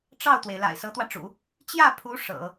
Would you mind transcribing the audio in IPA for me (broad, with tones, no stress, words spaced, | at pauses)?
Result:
ʈ͡ʂɑ˥˩ʊ̯t̪we˩ɪ̯ la̰˨˩ɪ̯sɤ˧˥t̪wä˧ʈ͡ʂṵ˨˩˦ | t͡ɕjä˥˩pʰu˧˥ ʂɤ̰˨˩˦